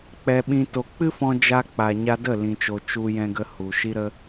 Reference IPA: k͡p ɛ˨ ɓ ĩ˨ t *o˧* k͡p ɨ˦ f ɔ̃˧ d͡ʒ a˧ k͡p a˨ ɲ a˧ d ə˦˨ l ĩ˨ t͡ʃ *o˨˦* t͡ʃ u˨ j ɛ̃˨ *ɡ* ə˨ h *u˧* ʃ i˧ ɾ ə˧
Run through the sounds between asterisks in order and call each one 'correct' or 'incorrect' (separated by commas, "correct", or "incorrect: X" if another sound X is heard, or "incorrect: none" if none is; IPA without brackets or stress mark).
incorrect: o˨, incorrect: o˨, correct, incorrect: u˨